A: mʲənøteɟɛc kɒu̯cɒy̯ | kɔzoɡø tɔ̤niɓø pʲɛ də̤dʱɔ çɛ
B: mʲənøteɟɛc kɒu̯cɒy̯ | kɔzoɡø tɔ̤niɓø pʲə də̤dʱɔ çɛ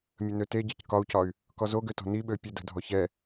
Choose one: B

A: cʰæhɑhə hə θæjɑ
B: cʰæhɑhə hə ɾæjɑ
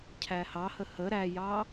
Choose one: B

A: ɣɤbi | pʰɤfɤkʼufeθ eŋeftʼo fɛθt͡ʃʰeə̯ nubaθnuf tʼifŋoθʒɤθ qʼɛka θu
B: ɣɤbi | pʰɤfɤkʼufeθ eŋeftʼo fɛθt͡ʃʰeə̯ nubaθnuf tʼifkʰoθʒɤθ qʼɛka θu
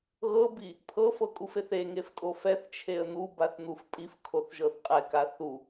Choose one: B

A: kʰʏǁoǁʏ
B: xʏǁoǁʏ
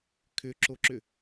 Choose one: A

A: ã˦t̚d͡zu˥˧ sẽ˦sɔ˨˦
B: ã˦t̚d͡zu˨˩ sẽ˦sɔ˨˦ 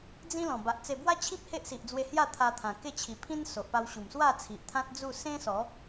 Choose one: A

